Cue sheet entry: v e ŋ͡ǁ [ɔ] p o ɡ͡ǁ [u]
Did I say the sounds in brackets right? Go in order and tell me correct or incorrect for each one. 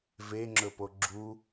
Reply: incorrect, correct

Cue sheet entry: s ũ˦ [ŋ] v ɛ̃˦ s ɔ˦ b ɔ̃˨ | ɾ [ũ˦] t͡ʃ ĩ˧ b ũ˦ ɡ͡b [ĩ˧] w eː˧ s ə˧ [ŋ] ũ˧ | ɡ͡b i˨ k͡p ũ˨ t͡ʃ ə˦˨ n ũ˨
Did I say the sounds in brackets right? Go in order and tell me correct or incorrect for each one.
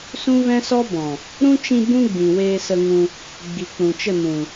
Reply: incorrect, correct, incorrect, correct

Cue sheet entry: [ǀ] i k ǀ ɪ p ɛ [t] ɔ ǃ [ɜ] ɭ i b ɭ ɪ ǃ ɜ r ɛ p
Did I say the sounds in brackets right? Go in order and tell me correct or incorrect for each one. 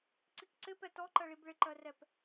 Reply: correct, correct, correct

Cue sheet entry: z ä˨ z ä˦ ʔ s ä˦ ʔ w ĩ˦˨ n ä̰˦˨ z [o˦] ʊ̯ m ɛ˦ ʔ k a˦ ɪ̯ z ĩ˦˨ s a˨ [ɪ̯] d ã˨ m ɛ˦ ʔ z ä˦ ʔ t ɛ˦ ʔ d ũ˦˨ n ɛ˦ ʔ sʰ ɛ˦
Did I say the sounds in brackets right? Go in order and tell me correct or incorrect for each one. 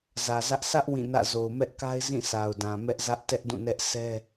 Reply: incorrect, incorrect

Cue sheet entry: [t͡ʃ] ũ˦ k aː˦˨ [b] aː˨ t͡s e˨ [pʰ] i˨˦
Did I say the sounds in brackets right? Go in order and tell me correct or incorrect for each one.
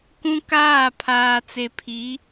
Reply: incorrect, incorrect, correct

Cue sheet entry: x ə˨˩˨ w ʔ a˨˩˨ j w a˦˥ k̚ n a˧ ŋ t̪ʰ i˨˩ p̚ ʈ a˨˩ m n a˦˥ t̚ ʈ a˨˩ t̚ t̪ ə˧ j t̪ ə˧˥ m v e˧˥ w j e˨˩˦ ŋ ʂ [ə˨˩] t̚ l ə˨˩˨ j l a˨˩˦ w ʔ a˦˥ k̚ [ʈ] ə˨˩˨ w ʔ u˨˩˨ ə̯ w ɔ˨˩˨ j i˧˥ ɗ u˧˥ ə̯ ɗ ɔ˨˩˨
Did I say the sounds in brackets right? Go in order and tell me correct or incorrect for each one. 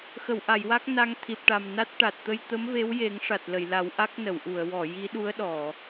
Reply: incorrect, incorrect

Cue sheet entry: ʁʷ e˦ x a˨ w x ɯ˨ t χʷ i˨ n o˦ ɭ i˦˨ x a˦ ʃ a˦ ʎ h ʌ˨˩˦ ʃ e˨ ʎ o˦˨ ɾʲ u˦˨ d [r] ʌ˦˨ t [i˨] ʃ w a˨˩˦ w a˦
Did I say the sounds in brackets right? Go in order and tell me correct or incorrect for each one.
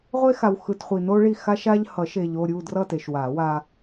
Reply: correct, incorrect

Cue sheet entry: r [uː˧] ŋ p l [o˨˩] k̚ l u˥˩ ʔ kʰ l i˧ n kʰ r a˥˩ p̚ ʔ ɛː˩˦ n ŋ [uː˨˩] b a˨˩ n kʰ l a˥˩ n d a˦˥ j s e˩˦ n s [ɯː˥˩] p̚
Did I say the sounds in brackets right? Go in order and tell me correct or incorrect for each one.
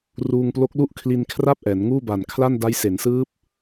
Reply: correct, incorrect, incorrect, incorrect

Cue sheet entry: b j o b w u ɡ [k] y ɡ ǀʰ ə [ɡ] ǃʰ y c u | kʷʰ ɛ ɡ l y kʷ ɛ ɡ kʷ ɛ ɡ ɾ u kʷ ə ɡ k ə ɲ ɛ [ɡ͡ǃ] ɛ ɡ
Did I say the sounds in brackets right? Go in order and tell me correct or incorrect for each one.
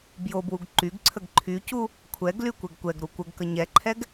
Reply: incorrect, correct, incorrect

